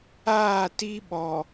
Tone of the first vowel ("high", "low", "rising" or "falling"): falling